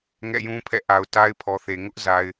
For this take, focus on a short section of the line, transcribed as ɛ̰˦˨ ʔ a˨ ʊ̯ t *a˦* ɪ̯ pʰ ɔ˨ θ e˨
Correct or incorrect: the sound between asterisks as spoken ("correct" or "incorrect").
correct